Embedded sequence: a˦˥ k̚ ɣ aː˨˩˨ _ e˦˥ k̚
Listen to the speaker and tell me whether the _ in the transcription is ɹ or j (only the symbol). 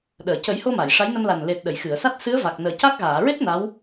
ɹ